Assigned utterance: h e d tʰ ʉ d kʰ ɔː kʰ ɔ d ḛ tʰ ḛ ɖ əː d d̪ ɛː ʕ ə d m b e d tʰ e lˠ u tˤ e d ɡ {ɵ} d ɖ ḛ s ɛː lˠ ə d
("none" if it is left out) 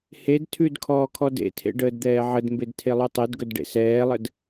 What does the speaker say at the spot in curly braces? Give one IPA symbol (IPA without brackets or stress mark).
ɵ